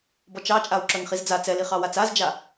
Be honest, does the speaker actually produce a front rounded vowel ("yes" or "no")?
yes